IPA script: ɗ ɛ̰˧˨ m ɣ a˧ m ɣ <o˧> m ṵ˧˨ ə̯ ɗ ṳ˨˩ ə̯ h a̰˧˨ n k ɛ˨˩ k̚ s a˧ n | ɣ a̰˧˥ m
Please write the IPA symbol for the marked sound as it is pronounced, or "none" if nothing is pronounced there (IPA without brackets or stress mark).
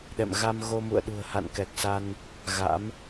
o˧